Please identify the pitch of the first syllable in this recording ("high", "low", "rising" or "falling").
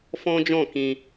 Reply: high